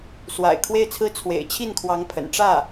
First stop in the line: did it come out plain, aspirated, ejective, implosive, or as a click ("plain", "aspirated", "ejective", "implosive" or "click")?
aspirated